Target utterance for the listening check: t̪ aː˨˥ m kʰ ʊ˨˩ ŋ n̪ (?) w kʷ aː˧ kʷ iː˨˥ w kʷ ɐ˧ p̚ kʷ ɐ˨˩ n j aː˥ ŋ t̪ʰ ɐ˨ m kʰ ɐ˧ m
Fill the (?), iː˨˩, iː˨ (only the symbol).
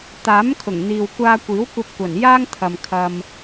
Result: iː˨